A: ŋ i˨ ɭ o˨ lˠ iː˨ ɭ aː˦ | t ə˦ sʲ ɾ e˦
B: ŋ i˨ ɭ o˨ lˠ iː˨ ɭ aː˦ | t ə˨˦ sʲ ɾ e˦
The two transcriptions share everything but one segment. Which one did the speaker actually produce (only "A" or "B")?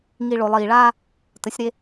B